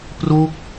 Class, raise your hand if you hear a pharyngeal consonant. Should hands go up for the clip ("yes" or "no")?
no